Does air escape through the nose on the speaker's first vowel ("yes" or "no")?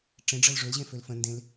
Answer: yes